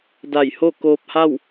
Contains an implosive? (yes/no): no